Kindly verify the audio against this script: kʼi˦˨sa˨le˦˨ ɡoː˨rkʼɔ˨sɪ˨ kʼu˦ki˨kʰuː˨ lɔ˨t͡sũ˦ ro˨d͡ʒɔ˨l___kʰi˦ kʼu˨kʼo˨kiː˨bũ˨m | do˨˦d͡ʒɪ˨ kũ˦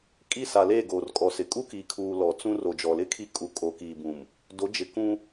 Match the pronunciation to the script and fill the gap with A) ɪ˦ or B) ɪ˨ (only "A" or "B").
A